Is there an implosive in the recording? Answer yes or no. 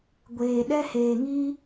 yes